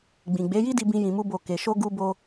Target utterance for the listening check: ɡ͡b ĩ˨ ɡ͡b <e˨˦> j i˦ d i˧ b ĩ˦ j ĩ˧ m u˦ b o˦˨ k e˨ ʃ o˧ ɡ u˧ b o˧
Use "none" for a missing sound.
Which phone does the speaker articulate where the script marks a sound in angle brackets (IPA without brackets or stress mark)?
e˨˦